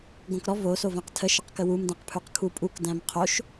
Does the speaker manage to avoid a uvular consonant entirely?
no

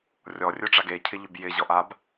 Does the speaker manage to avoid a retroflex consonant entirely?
no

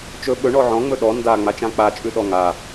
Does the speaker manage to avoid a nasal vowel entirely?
no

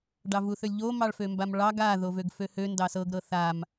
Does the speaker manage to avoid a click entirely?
yes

